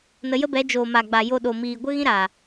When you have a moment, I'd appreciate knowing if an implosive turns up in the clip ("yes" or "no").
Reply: yes